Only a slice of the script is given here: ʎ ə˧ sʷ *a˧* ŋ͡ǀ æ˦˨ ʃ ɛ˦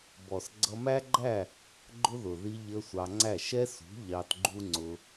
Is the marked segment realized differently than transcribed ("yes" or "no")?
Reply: yes